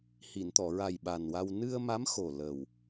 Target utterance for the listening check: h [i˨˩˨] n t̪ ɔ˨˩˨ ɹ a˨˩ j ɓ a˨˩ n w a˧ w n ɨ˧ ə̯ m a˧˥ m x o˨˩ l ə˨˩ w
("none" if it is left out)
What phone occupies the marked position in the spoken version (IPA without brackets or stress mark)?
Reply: i˨˩˨